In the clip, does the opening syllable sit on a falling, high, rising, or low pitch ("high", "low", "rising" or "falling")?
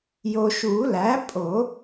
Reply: low